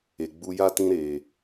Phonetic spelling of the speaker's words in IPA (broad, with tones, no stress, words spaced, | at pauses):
e˨ɡ͡bu˧ja˦ tĩ˧ɾe˨